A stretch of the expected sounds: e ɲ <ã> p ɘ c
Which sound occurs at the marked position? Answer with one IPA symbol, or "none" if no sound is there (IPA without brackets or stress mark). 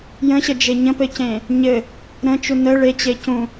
ə̃